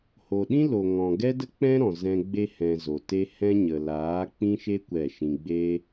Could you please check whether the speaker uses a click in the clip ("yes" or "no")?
no